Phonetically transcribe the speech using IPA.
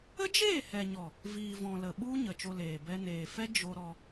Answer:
ə˦ d͡ʒ eː˦˨ h ɛ˨ ɲ ɔ˨ | v iː˨ v ɔ̃˨ l ə˨ ɓ u˦ ɲ ə˨ t͡ʃ o˧ l eː˨ b ɛ˧ n eː˨ f ɛ˦ d͡ʒ o˧ ɾ ɔ˧

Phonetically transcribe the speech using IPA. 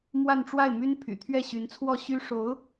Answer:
m w a˥˧ n ʈ͡ʂ w a˥˩ ɪ̯ m y˥ n pʰ y̰˨˩ t̪ʰ ɥ ɛ˥˩ ɕ y˧˥ n t͡sʰ w ɔ˥˩ ɕ y˥ ʂ o˧˥ ʊ̯

